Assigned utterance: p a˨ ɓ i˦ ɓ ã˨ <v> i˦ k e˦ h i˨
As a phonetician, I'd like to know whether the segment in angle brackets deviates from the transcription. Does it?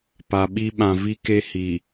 no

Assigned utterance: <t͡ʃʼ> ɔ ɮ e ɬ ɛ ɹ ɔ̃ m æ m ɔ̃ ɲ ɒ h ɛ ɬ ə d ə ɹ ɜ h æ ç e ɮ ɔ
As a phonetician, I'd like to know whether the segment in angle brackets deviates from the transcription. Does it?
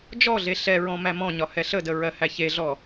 yes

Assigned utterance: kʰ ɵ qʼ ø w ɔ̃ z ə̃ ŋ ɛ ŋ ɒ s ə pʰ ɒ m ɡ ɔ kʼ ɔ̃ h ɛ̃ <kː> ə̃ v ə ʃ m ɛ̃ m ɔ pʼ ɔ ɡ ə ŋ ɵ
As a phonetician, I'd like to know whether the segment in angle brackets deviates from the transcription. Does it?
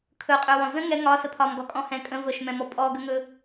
yes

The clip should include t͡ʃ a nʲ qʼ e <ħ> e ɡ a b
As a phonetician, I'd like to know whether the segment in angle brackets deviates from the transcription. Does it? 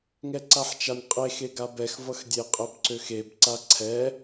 yes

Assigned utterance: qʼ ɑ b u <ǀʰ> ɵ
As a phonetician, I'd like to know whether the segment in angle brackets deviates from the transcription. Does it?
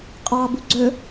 yes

